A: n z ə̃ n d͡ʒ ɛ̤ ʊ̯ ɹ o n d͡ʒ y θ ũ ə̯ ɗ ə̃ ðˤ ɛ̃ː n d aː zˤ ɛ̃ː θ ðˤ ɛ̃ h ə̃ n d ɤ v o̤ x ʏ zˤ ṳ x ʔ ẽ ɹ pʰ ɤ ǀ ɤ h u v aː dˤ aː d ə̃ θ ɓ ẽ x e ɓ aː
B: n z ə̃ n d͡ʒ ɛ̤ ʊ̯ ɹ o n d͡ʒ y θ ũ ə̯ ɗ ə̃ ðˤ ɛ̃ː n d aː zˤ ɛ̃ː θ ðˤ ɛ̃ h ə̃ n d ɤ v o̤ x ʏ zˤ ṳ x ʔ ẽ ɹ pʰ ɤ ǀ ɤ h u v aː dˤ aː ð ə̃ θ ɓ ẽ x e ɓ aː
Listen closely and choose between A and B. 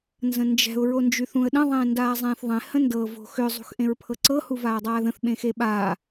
B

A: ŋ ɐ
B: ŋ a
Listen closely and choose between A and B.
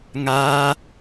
B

